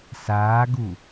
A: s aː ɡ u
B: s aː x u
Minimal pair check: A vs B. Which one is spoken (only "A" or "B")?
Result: A